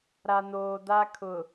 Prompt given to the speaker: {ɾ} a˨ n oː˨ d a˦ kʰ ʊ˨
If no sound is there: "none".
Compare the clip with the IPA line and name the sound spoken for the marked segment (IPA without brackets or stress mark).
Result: ɾ